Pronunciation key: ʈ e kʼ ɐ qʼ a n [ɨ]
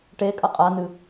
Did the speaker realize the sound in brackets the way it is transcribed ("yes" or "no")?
yes